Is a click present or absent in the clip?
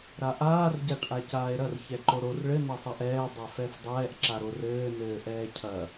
present